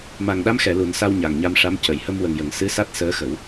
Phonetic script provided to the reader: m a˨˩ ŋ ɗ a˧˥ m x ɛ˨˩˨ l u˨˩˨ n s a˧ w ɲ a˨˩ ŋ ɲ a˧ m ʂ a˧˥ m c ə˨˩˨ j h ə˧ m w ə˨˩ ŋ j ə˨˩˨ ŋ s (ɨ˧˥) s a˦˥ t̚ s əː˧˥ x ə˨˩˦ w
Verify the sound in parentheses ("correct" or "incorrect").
correct